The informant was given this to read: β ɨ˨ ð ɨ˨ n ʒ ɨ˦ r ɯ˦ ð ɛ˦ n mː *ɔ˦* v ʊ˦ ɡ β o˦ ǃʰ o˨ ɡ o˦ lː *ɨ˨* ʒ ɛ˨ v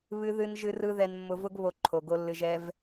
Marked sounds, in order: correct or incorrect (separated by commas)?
incorrect, correct